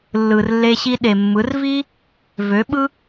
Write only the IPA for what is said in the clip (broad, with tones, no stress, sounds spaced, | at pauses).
lː ɯ˧ r lː e˦ ɕ i˦ ɗ e˨ mː ɯ˨˦ r v i˦ | v ø˨˦ ɓ ɯ˦